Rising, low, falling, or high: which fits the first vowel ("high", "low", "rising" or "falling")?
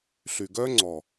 low